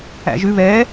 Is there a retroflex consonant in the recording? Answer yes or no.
no